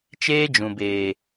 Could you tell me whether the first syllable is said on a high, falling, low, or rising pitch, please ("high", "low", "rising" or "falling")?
high